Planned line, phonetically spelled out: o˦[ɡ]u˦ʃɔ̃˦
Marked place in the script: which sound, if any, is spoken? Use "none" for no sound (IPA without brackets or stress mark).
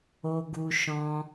ɡ